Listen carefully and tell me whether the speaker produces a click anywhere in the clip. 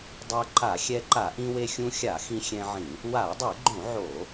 yes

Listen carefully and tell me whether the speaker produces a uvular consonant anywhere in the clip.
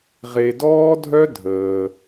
yes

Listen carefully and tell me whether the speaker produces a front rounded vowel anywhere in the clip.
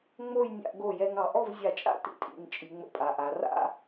no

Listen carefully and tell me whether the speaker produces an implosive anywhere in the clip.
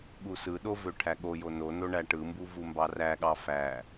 yes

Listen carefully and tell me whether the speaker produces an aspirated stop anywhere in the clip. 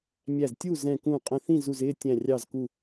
no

